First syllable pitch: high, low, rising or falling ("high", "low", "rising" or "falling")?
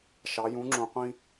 rising